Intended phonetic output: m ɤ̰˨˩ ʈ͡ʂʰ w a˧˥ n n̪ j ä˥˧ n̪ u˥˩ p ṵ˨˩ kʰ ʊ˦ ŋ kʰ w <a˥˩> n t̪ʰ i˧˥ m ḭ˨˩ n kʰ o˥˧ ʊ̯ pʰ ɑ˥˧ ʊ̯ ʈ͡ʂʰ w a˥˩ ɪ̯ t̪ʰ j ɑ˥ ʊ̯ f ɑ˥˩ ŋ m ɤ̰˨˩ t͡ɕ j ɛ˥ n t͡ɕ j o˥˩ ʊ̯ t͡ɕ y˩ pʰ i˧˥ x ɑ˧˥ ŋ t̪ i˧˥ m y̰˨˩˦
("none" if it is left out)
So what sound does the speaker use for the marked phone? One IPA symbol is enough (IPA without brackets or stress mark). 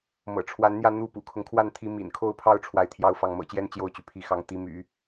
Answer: a˥˩